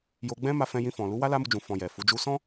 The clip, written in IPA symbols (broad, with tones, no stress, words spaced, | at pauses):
jo˧ɡ͡bɛ̃˦ma˧fɛ̃˧ jĩ˧fɔ̃˨ lu˨˦wa˦ la˦mu˧d͡ʒũ˨ fɔ̃˧jɛ˨ fu˨˦d͡ʒu˦ sɔ̃˦